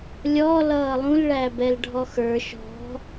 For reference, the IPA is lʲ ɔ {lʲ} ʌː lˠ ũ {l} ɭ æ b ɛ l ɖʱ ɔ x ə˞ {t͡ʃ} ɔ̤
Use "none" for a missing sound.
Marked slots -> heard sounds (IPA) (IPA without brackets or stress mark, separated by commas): l, l, ʃ